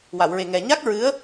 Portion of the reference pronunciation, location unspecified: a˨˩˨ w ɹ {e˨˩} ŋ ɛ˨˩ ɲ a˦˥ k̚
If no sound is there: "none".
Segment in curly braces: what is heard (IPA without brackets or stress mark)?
e˨˩